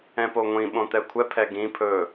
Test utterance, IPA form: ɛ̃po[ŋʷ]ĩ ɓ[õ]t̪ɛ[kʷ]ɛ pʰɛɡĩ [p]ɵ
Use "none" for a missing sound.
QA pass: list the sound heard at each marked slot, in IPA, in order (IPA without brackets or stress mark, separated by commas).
ŋʷ, õ, kʷʰ, pʰ